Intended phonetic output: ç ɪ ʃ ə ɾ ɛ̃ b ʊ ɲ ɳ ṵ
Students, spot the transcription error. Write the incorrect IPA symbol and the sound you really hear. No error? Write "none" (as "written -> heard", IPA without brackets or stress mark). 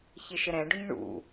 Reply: b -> ɖ